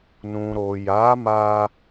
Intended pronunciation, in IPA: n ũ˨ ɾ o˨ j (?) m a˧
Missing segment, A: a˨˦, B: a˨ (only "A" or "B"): A